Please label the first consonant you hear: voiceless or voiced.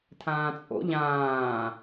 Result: voiceless